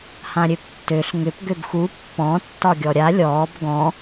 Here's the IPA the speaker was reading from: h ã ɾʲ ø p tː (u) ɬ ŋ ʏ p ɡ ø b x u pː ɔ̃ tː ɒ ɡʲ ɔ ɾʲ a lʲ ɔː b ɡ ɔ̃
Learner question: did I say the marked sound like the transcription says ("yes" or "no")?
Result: no